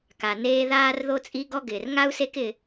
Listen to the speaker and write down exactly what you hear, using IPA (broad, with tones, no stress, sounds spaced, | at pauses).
k a˩ n eː˦ ð aː˥ r ð o˥ t͡sʼ i˥ ɡ ɔ˥ ɡ ɪː˩ r ŋ a˥ u̯ s e˦ k ɪ˨